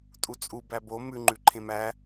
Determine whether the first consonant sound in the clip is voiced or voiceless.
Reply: voiceless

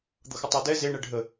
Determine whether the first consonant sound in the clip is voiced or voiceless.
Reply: voiced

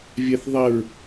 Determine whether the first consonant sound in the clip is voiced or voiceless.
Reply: voiced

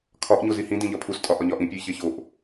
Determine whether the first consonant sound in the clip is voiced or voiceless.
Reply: voiceless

